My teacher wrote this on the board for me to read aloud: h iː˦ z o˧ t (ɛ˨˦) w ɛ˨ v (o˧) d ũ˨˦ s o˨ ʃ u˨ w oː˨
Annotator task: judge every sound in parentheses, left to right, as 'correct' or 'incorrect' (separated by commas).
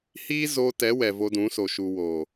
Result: correct, correct